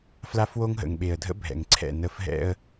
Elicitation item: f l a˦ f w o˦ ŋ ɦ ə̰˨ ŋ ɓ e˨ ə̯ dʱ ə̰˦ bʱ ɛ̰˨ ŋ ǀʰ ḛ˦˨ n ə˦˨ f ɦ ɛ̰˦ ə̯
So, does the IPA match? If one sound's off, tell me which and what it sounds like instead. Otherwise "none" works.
ḛ˦˨ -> ɛ̰˦˨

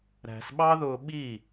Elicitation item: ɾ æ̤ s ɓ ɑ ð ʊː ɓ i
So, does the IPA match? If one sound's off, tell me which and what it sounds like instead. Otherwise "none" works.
none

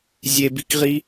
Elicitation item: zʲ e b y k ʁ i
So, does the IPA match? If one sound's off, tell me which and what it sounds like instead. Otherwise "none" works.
y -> i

